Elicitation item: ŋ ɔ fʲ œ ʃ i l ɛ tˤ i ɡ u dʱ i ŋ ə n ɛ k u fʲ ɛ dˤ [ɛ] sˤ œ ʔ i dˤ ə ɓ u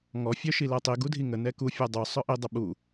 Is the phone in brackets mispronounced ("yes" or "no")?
yes